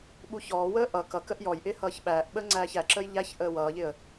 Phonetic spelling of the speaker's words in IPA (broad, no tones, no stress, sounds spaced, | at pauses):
ɓ u ç ɔː w əː ʔ ʌ k ʌ k ə ʔ j ɔ j ʔ ɪː h ʌː ç ɓ æː ʔ ɓ əː ŋ͡ǀ æː ç æ ǁ əː j ʎ æ ç ʔ əː w ʌː ʎ ɪ ə̯